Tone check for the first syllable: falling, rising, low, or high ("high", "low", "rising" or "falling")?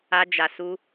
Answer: high